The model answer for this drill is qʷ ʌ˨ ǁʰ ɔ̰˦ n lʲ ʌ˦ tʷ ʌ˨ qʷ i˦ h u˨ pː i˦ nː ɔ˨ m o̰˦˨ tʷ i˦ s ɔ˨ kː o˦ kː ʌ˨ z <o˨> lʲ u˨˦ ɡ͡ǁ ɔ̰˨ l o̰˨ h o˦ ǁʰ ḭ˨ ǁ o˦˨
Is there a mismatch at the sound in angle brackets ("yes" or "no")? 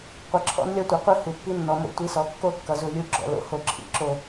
yes